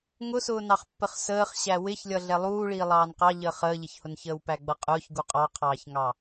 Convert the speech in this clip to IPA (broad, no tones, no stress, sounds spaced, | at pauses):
ŋ ʊ s ʊː n ɑ χ pː ə χ s əː χ ɕ æ w ɪ ç lʲ ʌ ɮ ɛ lˠ uː ɭ iː lˠ ɑː n q ɑ ʎ əː χ əː ʎ ɪ ç h ʊ n ç əː w p æ ɡ͡b ʌ qʼ ʊː ç ɡ u qʼ ɑ qʰ ɑː ç ŋ ɑ